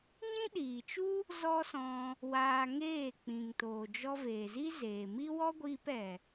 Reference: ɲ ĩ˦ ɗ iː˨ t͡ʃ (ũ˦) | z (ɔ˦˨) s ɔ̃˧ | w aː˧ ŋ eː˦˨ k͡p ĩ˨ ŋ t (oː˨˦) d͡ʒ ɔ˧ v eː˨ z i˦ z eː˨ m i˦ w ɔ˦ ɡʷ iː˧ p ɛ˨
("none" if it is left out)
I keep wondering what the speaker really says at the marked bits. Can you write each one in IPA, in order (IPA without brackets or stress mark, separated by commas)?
u˦, ɔ˦, oː˨